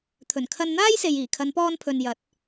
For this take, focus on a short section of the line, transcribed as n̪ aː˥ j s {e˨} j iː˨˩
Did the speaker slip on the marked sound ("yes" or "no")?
no